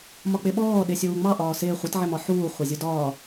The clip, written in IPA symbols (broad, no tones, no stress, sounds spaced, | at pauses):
m ɒ k͡p ɪ ɓ ɔː ɗ ɪ sʲ uː ŋ͡m ɑ ʔ ɒː s ɪː χʷ ɪ t ʕ ɪ m ɒ ħ uː χʷ ɑ zʲ u d ɒː